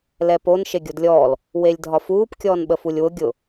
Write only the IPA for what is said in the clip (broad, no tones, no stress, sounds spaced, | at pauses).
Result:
l ɛ p o n ʃ e ɡʲ o d lʲ ɔː l | w e lʲ dʱ ɒ f uː p kʲ ɔː n ɓ ə f u lʲ w ʊ ɡʲ ʊ